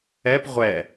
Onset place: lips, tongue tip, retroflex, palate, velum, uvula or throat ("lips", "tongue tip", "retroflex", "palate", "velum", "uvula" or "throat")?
lips